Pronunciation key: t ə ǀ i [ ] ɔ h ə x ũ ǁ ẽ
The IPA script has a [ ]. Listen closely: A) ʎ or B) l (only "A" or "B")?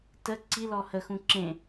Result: B